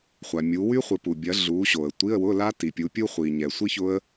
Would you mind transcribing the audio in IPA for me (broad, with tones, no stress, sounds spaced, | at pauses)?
χʷ a˨ mʲ u˨˦ w y˦˥ χʷ ɪ˨˦ p u˨ bʲ ɐ˨˦ ɮ u˨˦ ɕ o˨ ə̯ tʷ i˧˥˧ ə̯ w ʊ˧˥˧ l a˦˥ t i˨ pʲ u˨˦ pʲ u˦˥ χʷ i˨ ɲ ɛ˨ sʷ i˦˥ ç ʊ˦˥ ə̯